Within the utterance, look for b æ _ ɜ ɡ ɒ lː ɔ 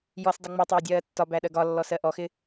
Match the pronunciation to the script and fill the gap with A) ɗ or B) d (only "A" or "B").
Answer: A